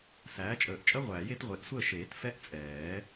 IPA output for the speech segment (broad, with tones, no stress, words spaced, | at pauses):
sæː˩˥t͡ʃʼəː˨˩˦ʔ t͡ʃʼə˦˥ʁʷæː˨˩˦j e˩˥tʁʷe˨˩˦ʔ sʷəː˦˨ʃeː˨˩˦t fɛ˦˥ʔ t͡sʼɛː˨˩˦